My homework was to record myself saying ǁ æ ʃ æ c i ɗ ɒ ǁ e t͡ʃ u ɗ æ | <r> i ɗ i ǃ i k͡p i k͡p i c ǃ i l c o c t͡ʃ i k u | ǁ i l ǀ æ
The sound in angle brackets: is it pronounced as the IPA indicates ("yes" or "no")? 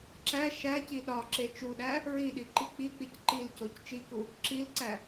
no